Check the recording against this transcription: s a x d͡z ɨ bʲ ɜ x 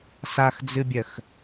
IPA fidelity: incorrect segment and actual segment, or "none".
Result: none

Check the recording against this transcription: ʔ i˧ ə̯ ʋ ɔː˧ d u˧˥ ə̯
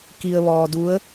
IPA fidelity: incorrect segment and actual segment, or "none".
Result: ʔ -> k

